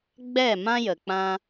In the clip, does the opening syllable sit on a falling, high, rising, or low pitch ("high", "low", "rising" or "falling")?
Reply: falling